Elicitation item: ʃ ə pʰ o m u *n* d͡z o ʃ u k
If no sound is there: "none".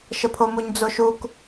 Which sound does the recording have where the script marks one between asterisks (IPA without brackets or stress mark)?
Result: ɲ